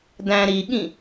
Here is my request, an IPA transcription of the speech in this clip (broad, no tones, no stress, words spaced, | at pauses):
dæ̃ɾiɠĩ